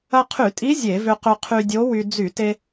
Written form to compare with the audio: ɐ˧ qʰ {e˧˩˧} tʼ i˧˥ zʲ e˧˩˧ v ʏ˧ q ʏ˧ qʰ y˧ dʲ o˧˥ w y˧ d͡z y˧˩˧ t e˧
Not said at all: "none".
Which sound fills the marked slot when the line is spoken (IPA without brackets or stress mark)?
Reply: y˧˩˧